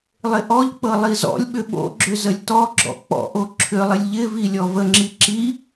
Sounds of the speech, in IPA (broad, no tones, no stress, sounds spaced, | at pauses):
lˠ ɪ ʔ ɔ ʎ k͡p ɤ lˠ i z ɔ̰ lʲ ɓ ʏ ɓ o̰ ɡ͡ǁ ʏ z ə lʲ t ɔ ɡ͡ǁ ɔ̰ k͡p ɔ̰ ʔ o ǁʰ ʏ lˠ ɪ lʲ ʎ ɪ v i lʲ ɔ v ə ŋ͡ǁ i ǁ i